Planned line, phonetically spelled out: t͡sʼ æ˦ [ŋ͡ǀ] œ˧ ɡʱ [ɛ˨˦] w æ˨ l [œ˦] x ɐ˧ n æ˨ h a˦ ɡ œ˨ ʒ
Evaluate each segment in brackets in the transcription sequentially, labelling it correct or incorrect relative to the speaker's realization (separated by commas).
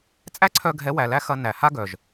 incorrect, correct, incorrect